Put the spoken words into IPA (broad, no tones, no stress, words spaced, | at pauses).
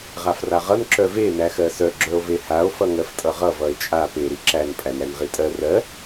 ʁafraʁʌn ǁœve næxɜsœ ɡ͡ǁœo̯vehao̯ fʌŋɜftʼʌʁʌ vʌe̯t͡ʃʼa pe ɾiǁæn pʼænɾænʁitʼɜ rɜ